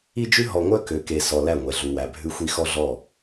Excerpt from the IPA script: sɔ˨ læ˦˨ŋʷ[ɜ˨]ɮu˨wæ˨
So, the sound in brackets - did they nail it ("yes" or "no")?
no